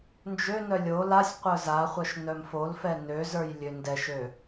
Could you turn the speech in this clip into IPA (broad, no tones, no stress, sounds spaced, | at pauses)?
n d͡ʒ ø n œ lʲ o l a sʲ qʷ œ z a χʷ œ ʃ n œ m f o l f ɛ n ø z ə˞ j lʲ ø n d ɛ ʃ ø